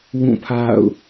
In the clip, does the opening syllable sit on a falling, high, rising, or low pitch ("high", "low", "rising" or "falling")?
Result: falling